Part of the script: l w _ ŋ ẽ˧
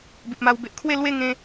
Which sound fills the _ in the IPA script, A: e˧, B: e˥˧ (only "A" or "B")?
B